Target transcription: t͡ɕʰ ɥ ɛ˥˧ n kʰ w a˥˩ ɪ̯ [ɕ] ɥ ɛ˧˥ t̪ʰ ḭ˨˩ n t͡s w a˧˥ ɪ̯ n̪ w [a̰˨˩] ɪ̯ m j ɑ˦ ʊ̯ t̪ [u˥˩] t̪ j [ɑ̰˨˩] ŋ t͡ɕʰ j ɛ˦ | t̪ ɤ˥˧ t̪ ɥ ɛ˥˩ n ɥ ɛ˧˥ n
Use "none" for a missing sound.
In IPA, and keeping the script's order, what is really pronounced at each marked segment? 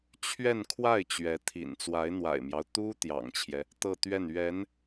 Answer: t͡ɕ, a̰˨˩, u˥, ɑ̰˨˩

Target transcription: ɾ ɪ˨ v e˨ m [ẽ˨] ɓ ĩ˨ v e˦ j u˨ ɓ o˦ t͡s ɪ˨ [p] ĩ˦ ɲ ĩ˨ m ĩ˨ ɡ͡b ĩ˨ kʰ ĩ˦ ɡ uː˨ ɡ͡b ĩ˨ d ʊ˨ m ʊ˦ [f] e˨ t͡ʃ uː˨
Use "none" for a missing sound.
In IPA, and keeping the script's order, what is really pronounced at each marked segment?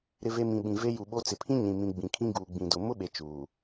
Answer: ĩ˨, pʰ, ɓ

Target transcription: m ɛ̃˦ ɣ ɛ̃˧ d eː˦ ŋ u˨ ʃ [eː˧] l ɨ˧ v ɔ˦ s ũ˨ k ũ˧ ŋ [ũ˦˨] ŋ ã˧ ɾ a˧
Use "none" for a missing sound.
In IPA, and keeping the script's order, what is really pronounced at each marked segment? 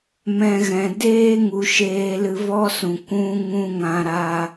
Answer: eː˧, ũ˦

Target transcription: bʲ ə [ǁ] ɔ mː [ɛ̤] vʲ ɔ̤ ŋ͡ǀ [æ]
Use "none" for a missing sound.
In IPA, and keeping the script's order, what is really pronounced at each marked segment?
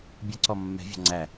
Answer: ǀ, ɛ̤, æ

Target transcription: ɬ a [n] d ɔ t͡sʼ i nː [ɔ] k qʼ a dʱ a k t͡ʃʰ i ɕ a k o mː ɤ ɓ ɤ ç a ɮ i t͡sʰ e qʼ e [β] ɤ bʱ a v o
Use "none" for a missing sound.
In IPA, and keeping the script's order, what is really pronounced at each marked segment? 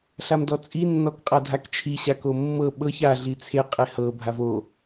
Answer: m, ɔ, h

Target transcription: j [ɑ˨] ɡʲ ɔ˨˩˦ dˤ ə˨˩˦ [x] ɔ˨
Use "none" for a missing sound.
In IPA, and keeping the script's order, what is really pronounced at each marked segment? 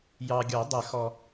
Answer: ɑ˨, x

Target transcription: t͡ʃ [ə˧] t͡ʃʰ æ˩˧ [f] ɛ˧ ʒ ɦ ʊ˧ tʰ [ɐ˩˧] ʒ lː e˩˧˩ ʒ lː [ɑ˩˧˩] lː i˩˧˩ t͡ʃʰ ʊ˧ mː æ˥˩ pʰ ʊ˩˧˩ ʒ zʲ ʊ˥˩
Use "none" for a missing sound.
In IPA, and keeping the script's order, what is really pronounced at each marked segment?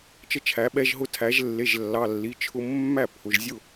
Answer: ə˧, ɓ, æ˩˧, ɑ˩˧˩

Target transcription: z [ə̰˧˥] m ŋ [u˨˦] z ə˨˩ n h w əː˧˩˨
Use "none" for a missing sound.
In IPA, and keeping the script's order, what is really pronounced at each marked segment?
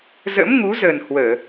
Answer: ə̰˧˥, u˨˦

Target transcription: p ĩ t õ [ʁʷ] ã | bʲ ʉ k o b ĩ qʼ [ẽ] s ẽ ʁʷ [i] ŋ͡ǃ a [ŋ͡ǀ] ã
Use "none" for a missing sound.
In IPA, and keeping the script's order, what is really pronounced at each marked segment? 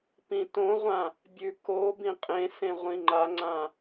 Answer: ʁʷ, ẽ, ĩ, ŋ͡ǀ

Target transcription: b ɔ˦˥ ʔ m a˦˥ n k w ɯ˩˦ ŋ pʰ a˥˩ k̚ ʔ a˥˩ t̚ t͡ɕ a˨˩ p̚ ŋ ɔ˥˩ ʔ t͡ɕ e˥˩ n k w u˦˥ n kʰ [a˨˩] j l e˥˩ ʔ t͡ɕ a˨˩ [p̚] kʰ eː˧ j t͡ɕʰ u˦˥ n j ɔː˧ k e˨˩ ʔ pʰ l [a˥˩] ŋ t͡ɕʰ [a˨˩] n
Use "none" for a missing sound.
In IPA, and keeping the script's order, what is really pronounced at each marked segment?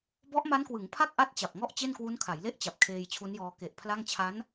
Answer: a˩˦, p̚, a˥˩, a˦˥

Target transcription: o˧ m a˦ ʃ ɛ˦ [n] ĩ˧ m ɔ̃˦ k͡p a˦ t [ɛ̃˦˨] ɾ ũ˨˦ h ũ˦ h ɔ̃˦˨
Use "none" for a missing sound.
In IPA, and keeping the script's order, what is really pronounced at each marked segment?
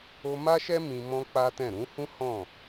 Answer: m, ɛ̃˦˨

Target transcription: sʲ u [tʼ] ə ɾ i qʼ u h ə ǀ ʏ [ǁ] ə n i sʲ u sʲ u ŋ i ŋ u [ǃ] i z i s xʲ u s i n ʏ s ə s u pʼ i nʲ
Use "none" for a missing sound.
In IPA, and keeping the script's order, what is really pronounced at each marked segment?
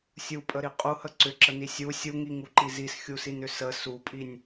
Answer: pʼ, ǁ, ǃ

